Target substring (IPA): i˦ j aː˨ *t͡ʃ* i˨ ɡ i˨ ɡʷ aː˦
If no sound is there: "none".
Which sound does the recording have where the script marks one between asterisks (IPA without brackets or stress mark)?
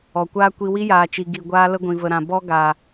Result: t͡ʃ